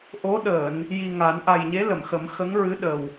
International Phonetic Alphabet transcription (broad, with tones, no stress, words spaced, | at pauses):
ʔo˧˥ɗəː˨˩˨n | ji˨˩ ŋa˨˩˦n ʔa˨˩jɲe˧˥lə˨˩˨mxə˨˩˦m xə˧˥ŋɹɨ˧˥ɗə˨˩w